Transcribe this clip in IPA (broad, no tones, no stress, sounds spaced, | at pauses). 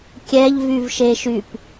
kʲ ɛ ʎ v y v ʃ e ʃ y p